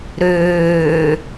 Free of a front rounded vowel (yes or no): no